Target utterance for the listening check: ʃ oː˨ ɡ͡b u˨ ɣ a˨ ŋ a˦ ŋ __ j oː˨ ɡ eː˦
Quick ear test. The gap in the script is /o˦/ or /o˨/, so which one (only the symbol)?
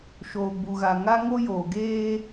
o˦